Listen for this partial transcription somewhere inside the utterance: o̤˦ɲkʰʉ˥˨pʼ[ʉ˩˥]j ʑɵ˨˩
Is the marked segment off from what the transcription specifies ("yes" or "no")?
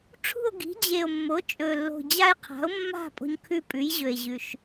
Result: no